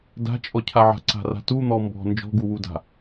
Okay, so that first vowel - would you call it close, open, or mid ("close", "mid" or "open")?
open